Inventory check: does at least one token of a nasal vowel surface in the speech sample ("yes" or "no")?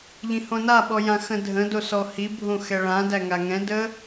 yes